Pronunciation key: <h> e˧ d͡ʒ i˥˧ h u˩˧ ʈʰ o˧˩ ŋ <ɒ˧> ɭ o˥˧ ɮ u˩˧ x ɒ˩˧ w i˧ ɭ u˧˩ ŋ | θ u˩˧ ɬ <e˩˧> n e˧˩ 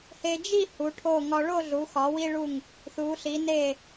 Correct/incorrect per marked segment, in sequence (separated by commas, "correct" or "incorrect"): correct, correct, incorrect